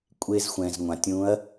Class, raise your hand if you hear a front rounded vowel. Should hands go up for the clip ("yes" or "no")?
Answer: no